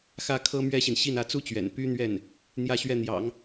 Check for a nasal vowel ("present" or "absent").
absent